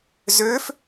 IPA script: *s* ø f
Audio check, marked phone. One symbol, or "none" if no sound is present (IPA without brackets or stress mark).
z